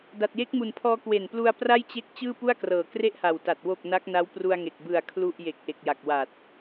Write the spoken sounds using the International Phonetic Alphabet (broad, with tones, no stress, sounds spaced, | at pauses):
d a˨˩ t̚ j e˦˥ k̚ m u˨˩ n pʰ ɔː˧ k w e˨˩ n p l u˧ a̯ p r a˥˩ j t͡ɕ e˦˥ k̚ t͡ɕ ɯː˥˩ p u˥˩ a̯ k r ɤː˨˩ k r e˥˩ ʔ h a˨˩ w t a˨˩ t̚ w o˨˩ k̚ n a˦˥ k̚ n a˦˥ w p r u˧ a̯ ŋ e˨˩ k̚ b ɯ˨˩ a̯ kʰ l u˥˩ ʔ j e˨˩ k̚ ʔ e˨˩ k̚ j a˨˩ k̚ w a˨˩ t̚